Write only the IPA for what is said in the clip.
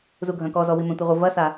z u ɡʱ œ̃ k ɔ z ɔ w i m ɛ̃ tʷ i ʁʷ ɪ v ɐ s a

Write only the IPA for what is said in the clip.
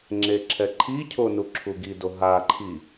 ŋ͡ǁ e ǁʰ ɛ ǃʰ i cʰ o n u ǁʰ u ɡ i d o ɦ a ǃʰ i

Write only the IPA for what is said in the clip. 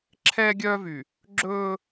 ǁʰ ɛː˦ ɡʲ œː˦ v y˨ | ɡ͡ǁ ɵː˦

